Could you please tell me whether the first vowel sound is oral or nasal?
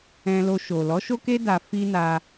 nasal